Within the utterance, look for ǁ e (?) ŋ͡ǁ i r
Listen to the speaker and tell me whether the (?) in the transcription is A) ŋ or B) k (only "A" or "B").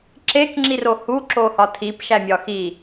B